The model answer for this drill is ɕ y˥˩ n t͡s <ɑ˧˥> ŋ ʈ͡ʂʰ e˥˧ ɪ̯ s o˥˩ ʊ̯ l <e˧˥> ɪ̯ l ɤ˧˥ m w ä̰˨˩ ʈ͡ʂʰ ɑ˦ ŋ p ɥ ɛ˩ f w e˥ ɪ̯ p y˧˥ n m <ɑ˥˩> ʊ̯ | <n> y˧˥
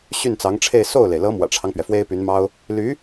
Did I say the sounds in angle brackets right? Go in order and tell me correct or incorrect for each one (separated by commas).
correct, incorrect, incorrect, incorrect